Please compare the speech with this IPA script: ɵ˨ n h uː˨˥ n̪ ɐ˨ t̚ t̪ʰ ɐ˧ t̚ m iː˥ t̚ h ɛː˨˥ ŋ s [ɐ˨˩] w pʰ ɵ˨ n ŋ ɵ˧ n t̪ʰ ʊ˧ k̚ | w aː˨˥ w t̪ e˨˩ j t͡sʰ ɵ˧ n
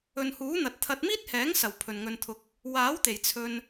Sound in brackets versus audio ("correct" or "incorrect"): correct